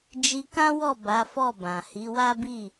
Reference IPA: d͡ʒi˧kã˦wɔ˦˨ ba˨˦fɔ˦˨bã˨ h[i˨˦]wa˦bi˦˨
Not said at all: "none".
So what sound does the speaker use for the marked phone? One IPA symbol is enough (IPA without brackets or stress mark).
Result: i˨˦